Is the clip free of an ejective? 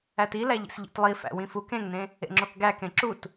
yes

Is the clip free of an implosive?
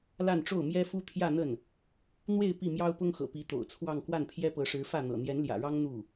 yes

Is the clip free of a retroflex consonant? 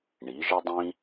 no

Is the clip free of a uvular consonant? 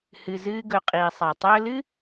no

